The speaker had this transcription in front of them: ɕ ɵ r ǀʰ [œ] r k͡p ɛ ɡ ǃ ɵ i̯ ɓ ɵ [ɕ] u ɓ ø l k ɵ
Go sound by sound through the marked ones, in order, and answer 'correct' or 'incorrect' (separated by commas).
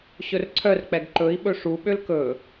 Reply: correct, incorrect